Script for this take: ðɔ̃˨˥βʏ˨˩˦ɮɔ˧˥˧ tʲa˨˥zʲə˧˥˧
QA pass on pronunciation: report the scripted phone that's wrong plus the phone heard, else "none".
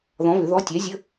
ɮ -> ð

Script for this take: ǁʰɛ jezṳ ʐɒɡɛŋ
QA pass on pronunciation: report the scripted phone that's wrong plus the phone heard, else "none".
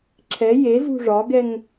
none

